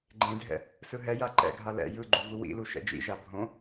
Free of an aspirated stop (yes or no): yes